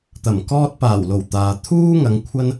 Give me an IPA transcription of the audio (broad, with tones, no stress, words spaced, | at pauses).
t̪ɐ˨˩mkɔː˧t̚paː˨˩wlo˨˩w t̪aː˨ t̪ʰuː˥ŋɐ˨˧ŋ kʷʰɐ˧n